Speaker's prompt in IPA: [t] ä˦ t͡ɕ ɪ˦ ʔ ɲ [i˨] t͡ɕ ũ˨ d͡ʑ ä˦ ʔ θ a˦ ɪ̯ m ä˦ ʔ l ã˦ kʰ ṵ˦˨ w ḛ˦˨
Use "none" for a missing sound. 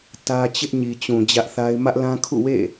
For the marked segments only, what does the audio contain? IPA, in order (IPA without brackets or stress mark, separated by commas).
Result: t, i˨